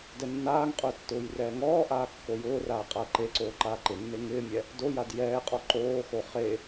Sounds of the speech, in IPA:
d ɛ nː aː ŋ qʼ ʊː tː ʊː j r ɛː ŋ ɔː ʔ aː kː o j ʊː r aː qʼ a ɐ̯ ǃ e ǀ oː ǃ aː ǃ ɪ nː e ŋ ɪː mʲ ɛ | d o j a d j ɛː qʼ ɔ ǃ oː x o χ e

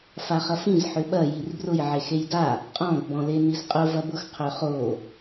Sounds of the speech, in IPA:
f a χ ɐ f ĩ z ħ ʏ ɓ ɐ j i r b r ʊ j ʕ e x e j d a | qʼ ɔ̃ ɡ b ɔ̃ l e n i z qʼ ʊ v ɐ b ʊ x qʰ ø χ o

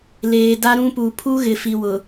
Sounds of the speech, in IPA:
l eː˨ d a˦ ɾ ũ˦ p u˨ pʰ u˦ ɣ ɪ˨ f i˨ w ʊ˨

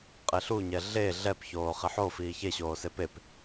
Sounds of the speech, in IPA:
qʼ e ɬ u ɲ ɛ ɮ e ɮ ɛ p ç oː χ i ħ o f iː ç e ɕ oː s e p e p

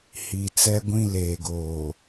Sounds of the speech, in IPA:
h i˨ t͡s ɛ˦ ɡʷ ĩ˦ l eː˨ ɡ oː˨

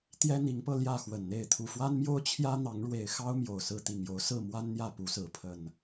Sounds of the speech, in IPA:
t̪ j ɛ˦ n̪ i˨˦ ŋ p ɤ˧ l j ä˥˨ x w ə˨˩ n n̪ e˥˨ ɪ̯ t̪ʰ u˨˩ f w a˦ n m j o˦ ʊ̯ t͡ɕʰ j ä˦ n̪ ɑ˨˦ ŋ ɻ w e˨˩ ɪ̯ x ɑ˦ ʊ̯ m j o˨˩ ʊ̯ s ɹ̩˥˨ t̪ i˨˩ ŋ j o˨˦ ʊ̯ s ɹ̩˥˨ m w a˦ n n̪ j ä˥˨ p u˨˦ s ɹ̩˨˦ pʰ ə˨˩ n

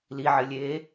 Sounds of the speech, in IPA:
l i ʕ ɘ lʲ eː

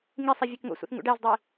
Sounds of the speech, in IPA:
ŋ i sˤ i vʲ e k ŋ o̰ sʷ ḭ θ ŋ ṵ ɖ æ z dˤ i

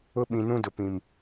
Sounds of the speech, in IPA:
ʊ˦ ɓ ĩ˨ n ũ˦ d ʊ˨ p ĩ˨ m

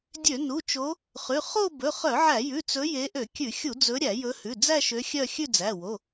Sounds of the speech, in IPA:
dʲ ø˧˩˧ n u˩˧˩ t͡ʃ o˨˦ | χ ʉ˩˧˩ χ o˥˧ b ɵ˩˧˩ χ œ˧˩˧ ʕ æ˧˩˧ j ʉ˩˧˩ t͡s ɵ˨˦ j e˨˦ ʔ ø˧˩˧ kʲ ʉ˧˩˧ xʲ u˧˩˧ d͡z ɵ˨˦ ɾʲ æ˧˩˧ j ɵ˨˦ h ʉ˩˧˩ d͡z æ˥˧ ʃ ø˨˦ xʲ œ˥˧ xʲ ʉ˥˧ d͡z æ˩˧˩ w o˩˧˩

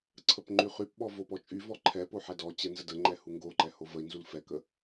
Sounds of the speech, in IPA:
ǀʰ ə p ŋ͡ǃ y χ y p ɓ ɔ v o p ɔ t͡ʃʼ y v ɔ ǃʰ ɛ p o ħ ɛ d ɔ t͡ɕ ɛ n z ə d ə ŋ͡ǃ ɛ h u ŋ ɡ o ǃ ɛ h o v ə i̯ n z u l f ɛ k ə

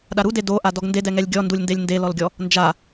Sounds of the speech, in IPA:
ɗ a ɾ u d e d o ʔ a d ɔ ɡ n d e d ɛ ŋ ɛ lʲ ɡʲ ɔ n d u lʲ n d e lʲ n d e l ɔ l ɡʲ ɔ | n d͡ʒ a

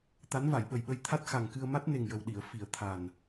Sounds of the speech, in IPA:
t̪ a˧˥ n v a˨˩˨ j ɓ ə˨˩ j ɓ ə˧ j t̪ʰ a˦˥ t̚ x a˨˩ ŋ k ɨ˧ ə̯ m a˦˥ t̚ n e˨˩ ŋ j ə˨˩ w ɗ i˨˩˨ ə̯ f i˨˩˨ ə̯ t̪ʰ a˨˩ n

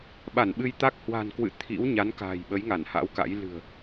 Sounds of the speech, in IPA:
ɓ a˧˩ n ɓ ɨ˧ j t̪ a˦˥ k̚ h w a̤˨˩ n k w ɨ̰˧˨ t̪ʰ ḭ˧˥ w ɲ a˨˦ n k a̤ː˨˩ j ɓ ə˨˦ j ŋ a˧˩ n h a̰˧˥ w k a̰˧˥ j l ɨ̤˨˩ ə̯

